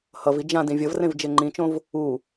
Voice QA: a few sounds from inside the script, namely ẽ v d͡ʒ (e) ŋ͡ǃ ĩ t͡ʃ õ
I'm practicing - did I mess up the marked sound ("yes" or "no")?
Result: no